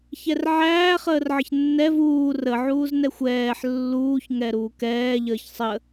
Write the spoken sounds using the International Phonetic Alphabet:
ç ɛ r ʕ æː χ əː r ʕ ə ç nː ɛ v uː r ə ʕ uː z n ɛ xʷ ɛː ħ lː uː ç ŋ ɛ ɾ uː k ɛː ʎ əː ç sˤ ə

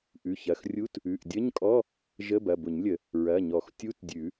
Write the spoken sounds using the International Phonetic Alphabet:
ʔ ʉ˩˧˩ ç ɐ˩˧˩ x rʲ u˧˥˧ t | ʉ˩˧˩ ʔ dʲ ə˧˥˧ ɲ kʼ ɔ˧˥˧ | ʒ ə˧˥˧ b ɐ˩˧˩ b ʊ˨˩˦ ɲ lʲ ə˨˩˦ | ɹ ɐ˩˧˩ ɲ ɔ˨˩˦ x tʲ u˧˥˧ t dʲ ʉ˨˩˦

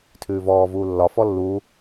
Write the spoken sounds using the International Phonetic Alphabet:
tʰ ʉː v ɔː v uː lː ɒ f ɔ lː uː

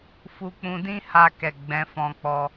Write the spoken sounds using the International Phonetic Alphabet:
f u˧ k͡p ũ˧ d ĩ˦ h a˧ k ɛ˨ ɡ͡b ɛ̃˧ f ɔ̃˧ k͡p ɔ˧

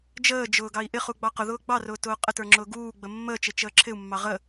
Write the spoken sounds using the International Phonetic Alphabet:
d͡ʒ əː d͡ʒ ʊː ɡ ɑ i̯ ʔ ɪ χ u ɡ͡b ɑ q ʊ ð ʊː ɡ͡b ɑ r ʊː t ʊː qʼ ə t ə˞ ŋ͡ǁ ʊː ɡ uː ɡ͡b ə mː əː t͡ʃ ɪ t͡ʃ əː ǁʰ ɪ u̯ mː ɑ ʁ ə

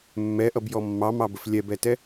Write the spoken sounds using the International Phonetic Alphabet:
mː ɛ ʔ ʌ b j ɔ mː ɑ m ɑ b ə f lʲ ɛ b ɛ t ɛ

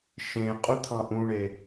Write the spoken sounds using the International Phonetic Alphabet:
ʃ ẽ qʼ u t̪ʰ ɑ̃ ʔ ũ ɳ e

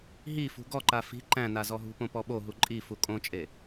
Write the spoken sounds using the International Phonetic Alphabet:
ɦ i f ṳ ɡ ɔ ǃ a f i̤ ǃ æ̃ n a z ɔ ɦ ṳ p õ p ɔ ɓ o ɦ u ǃʼ i f u kʼ õ t͡ʃʼ e

